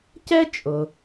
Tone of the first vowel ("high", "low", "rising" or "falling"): high